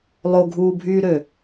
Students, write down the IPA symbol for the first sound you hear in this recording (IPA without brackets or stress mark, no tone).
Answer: lˠ